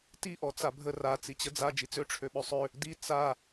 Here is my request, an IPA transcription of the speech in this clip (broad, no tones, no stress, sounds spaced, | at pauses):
t i ʔ ɔ t͡s a bʱ ə r a t͡s i t͡ɕ ə d͡z a d͡ʒ i t͡s ø ʈ͡ʂʰ ø ɓ ø sˤ ø | d i t͡s a